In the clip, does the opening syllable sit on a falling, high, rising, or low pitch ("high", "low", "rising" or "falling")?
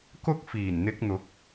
high